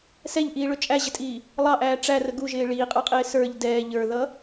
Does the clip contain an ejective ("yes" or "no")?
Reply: yes